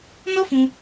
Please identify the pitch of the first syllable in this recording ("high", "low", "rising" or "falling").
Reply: high